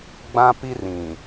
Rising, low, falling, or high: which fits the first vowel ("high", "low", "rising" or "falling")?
high